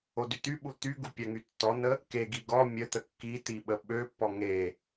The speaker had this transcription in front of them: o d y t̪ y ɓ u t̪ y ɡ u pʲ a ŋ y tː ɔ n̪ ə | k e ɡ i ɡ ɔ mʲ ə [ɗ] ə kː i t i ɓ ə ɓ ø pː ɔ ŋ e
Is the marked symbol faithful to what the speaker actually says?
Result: no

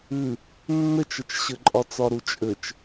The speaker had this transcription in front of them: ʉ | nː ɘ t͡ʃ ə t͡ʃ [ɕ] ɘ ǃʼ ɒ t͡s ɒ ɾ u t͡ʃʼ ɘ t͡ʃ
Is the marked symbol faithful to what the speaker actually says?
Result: yes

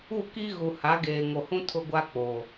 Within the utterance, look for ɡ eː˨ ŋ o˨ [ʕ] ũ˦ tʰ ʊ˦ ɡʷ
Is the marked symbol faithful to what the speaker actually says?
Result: no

